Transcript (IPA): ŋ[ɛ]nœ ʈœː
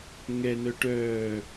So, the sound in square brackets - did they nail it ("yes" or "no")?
yes